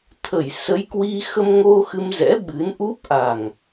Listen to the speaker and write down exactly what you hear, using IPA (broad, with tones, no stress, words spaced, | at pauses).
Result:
t̪ʰə˧˩jsə˨˦jkwi˧ xə˧mŋo˧ xɨ˧mzɛ̰˧˥ ɓɨ˨˦nʔu˦˥p̚ʔa˨˩ŋ